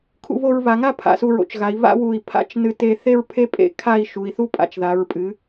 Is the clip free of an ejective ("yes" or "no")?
no